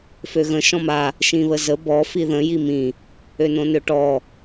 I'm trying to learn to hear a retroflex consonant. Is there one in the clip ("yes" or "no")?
yes